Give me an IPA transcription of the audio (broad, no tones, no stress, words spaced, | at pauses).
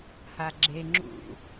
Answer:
haɡ͡ǁe ŋ͡ǁṵ